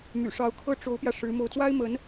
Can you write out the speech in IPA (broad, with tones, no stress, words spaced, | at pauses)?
my̰˨˩ʂɑ˧˥ʊ̯kʰɤ˥˩ ʈ͡ʂo˧˥ʊ̯pjä˧ ʂɻ̩˧˥ mo˥˩ʊ̯ t͡swa˥ɪ̯mə˧˥n